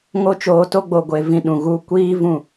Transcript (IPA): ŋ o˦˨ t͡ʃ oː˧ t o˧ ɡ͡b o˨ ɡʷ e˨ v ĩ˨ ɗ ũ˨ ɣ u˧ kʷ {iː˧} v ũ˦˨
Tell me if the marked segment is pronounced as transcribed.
no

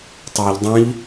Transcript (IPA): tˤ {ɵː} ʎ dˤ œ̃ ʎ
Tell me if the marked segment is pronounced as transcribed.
yes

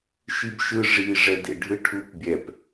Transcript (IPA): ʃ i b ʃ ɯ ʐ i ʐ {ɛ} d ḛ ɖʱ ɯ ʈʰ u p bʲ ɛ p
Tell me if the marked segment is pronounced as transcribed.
yes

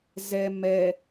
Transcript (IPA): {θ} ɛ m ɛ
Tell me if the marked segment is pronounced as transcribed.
no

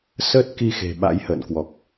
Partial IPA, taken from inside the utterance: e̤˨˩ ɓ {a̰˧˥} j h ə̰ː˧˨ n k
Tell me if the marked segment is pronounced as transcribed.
yes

